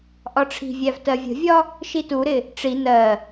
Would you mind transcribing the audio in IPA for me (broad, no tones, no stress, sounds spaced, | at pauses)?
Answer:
ʔ ɒ ʈ͡ʂʰ i̤ vʲ æ v t ɜ vʲ ə̤ vʲ ɒ | ʃ i t u ɾ ɪ | ʈ͡ʂ i n ɜ